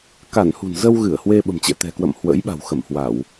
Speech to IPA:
k a˧˩ n h ṳ˨˩ n z ə˧ w ɣ ɨ˧˩ ə̯ h w e˧ ɓ ə̤˨˩ m t͡ɕ ɛ̰˧˨ t̪ ɛ̤˨˩ k w ə̰˧˨ m h w ə̰˧˥ j ɓ a̤˨˩ w x ə˧˩ m h w a˧˩˨ w

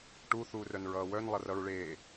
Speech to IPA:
ʈ u θ uː r œ n ɹ ʌː w œ n lˠ ʌ r ʌ ɹ ɭ eː

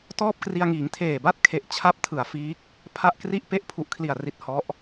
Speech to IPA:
t ɔː˥˩ p̚ k r i˧ a̯ ŋ iː˩˦ ŋ tʰ eː˨˩ b a˦˥ t̚ kʰ e˨˩ ʔ t͡ɕʰ a˥˩ p̚ tʰ ɯ˨˩ a̯ f iː˦˥ k̚ | pʰ a˥˩ ʔ k r i˥˩ ʔ p e˦˥ ʔ pʰ u˨˩ ʔ kʰ l i˨˩ a̯ r i˨˩ t̚ h ɔ˦˥ ʔ

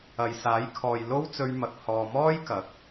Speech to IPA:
ɐ˨ j s aː˨˥ j kʰ ɔː˨ j l o˥ w t͡s ɵ˧ ɥ m ɐ˨ k̚ h ɔː˨ m ɔː˥ j k ɐ˨˥ k̚

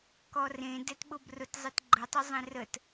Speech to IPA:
k ɔ r ẽ d ɛ t ɓ ʊ b r ʊ t zˤ ɘ t ɡ͡ǃ ə tˤ ʊ zˤ ẽ r ə t

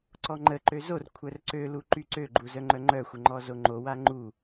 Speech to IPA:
ǀ ɔ ŋ͡ǃ ə ǃ ø z o r kʷʰ œ r ǀ ø l u ǃ y ǀ ø ɡ͡ǃ u z œ ŋ͡ǃ œ ŋ͡ǃ œ xʷ ə ŋ͡ǃ ɔ z o ŋ͡ǃ o w a ŋ͡ǃ u

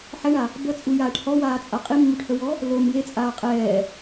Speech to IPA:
ħ ɛ ɳ a | b ə t͡sʼ u j aː ʈ h ɔ w aː t͡sʼ a qʼ i mː u ʈ h ə w ɔ | l o m j e t͡sʼ aː qʼ ɛː

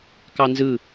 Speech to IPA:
k ɑ n z ɯ

